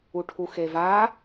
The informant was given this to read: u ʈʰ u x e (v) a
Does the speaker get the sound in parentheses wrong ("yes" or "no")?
no